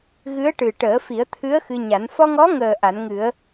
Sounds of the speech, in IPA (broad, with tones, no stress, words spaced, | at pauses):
ɣɨ˧˥ə̯ʈɨ˨˩ ʈəː˨˩˦ fi˨˩˦ə̯t̪ʰɨ˧˥ə̯ xɨ˧ɲa˨˩˦n fɔ˧ŋɔ˧˥ŋəː˨˩ ʔa˨˩˦nŋɨ˨˩˦ə̯